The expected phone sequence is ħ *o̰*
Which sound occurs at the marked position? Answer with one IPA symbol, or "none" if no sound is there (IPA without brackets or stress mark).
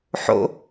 o̰